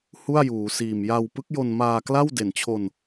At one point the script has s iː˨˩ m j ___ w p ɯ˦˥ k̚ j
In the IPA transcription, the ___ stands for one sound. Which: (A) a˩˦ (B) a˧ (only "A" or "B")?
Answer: B